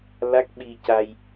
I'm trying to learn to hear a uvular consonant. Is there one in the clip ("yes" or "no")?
no